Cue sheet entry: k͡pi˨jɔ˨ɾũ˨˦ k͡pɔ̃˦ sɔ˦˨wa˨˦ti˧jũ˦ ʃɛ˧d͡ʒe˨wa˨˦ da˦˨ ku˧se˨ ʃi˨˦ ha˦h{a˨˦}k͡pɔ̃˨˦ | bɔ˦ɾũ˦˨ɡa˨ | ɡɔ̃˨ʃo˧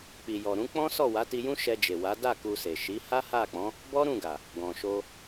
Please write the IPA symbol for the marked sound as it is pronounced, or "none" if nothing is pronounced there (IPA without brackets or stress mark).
a˦˨